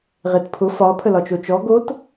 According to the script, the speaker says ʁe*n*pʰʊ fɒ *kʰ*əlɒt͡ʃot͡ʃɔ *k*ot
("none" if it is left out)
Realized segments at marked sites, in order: t, pʰ, ɡ

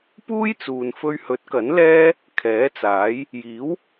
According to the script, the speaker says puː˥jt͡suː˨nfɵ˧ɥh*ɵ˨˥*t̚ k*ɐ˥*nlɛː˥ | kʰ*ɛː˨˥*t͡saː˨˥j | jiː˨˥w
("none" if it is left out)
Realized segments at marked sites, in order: ɵ˨˥, ɐ˨˥, ɛː˨˥

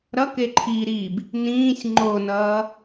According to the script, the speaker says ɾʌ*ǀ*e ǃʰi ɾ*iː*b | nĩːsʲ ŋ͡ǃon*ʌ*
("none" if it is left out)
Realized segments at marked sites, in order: k, i, ʌː

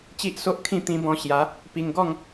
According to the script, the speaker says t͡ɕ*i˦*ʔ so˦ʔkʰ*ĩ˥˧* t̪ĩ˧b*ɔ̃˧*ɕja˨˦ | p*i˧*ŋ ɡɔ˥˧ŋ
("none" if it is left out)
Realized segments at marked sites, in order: i˦, ĩ˥˧, ɔ̃˧, i˧

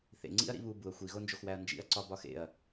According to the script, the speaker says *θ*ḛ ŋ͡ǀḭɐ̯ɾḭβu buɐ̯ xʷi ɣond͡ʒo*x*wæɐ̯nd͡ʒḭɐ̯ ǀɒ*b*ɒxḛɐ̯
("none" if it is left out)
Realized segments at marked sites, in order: θ, x, b

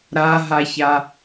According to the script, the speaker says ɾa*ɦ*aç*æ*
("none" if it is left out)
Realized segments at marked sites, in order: ɦ, a

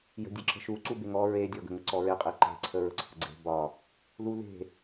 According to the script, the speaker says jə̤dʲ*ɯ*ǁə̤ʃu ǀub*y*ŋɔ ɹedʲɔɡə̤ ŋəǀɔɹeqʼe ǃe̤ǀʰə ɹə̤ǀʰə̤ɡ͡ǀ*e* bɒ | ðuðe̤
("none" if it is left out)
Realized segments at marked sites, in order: ə, e, e̤

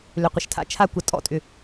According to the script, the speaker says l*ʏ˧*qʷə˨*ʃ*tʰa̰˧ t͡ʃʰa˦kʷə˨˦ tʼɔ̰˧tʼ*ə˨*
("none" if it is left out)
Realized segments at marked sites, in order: ʏ˨, ʃ, ʏ˨

